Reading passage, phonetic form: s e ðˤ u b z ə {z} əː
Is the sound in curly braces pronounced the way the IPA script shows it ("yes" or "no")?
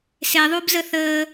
no